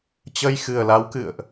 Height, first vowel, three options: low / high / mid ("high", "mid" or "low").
mid